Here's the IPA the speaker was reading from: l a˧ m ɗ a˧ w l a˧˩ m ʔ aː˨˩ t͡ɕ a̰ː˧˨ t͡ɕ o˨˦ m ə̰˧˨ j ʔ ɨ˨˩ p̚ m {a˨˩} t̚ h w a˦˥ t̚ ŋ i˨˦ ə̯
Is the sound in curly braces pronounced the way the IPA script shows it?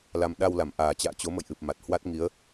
yes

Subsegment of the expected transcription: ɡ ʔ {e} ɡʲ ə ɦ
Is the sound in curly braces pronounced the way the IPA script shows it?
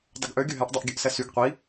no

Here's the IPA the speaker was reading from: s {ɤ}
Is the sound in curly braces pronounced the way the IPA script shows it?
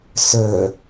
no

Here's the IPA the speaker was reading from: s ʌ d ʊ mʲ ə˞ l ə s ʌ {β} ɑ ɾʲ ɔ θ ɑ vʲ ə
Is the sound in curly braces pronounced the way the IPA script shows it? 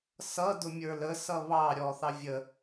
yes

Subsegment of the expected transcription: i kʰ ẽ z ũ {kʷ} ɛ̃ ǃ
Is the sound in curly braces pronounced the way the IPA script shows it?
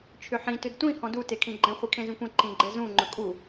yes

